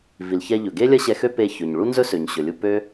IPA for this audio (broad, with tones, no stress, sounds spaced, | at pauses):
v i˩ l ç ɛ˧ ʎ ɵ˩ ɡ e˥ lʲ ɐ˥ ɕ ɛ˧ x ø˥ p e˧ ç ɵ˩ ɲ ɭ u˥ n z ɵ˥ s ø˩ ɲ ɕ ɵ˩ lʲ u˧ p ø˥